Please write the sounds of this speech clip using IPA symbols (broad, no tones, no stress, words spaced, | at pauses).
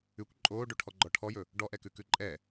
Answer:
ʉkʷ ǃʼoːɖoʈʰɔɡ͡ǃɔ ʈʰɔjɵ | ɖɔʔɛkʉ kʉǃʼɛ